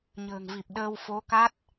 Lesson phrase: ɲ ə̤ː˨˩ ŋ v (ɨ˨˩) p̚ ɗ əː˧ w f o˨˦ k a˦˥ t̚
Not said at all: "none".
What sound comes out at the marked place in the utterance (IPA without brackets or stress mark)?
i˨˩